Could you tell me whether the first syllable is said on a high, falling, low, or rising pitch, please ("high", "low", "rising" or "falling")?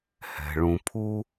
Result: low